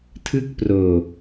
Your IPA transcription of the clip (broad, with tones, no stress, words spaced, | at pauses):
tʰɯ˥˩k̚proː˧